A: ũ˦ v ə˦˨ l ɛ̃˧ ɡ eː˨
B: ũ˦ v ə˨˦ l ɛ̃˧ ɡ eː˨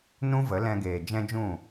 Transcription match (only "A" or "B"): B